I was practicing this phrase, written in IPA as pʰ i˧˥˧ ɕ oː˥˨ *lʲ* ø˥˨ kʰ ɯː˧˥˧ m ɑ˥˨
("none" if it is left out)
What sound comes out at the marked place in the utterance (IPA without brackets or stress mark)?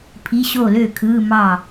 l